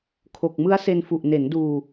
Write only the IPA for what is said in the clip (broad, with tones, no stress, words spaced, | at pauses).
kʰo˨˩k̚mɯ˦˥a̯se˧n fu˨˩ʔne˩˦nduː˧